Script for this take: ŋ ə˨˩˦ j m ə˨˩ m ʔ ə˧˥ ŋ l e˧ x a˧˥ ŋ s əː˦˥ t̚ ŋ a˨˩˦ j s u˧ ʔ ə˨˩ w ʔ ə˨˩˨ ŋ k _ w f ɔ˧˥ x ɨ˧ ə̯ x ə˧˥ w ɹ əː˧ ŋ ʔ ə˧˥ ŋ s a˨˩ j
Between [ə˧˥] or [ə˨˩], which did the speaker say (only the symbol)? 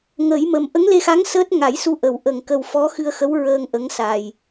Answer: ə˨˩